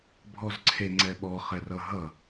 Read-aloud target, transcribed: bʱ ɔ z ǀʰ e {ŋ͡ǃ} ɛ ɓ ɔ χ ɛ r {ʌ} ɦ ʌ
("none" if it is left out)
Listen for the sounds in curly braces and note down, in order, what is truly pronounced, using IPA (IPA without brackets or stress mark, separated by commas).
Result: ŋ͡ǀ, ʌ